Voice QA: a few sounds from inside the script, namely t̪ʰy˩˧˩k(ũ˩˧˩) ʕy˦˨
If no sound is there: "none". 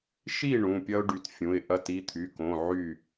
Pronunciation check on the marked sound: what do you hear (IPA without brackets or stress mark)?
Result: õ˩˧˩